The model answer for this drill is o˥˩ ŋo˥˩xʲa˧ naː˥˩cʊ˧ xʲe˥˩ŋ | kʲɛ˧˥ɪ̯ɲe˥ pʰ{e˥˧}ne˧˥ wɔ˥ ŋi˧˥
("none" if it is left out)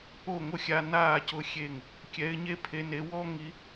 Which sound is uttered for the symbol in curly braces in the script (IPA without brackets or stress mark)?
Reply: e˧˥